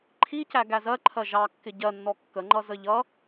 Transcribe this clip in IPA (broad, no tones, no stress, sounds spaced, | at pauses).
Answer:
ǃʰ i c æ ɡ æ z ɜ ǃʰ ɜ ʒ ɑ kː ɪ ɟ ɜ nː ɔ kː ə ŋ͡ǃ ʌ z ə ʎ ʌ